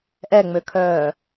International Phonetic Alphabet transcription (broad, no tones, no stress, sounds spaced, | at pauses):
ʔ ɛ ŋ͡m ø kʰ œː